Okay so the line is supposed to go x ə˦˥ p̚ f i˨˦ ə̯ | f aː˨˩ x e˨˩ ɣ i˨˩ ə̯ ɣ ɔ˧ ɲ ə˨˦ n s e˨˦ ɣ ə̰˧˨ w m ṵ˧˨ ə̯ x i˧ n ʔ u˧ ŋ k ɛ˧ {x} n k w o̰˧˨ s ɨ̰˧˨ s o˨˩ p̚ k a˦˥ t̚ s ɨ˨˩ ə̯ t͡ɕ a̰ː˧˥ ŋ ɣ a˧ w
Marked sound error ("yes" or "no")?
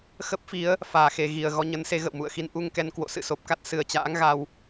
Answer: yes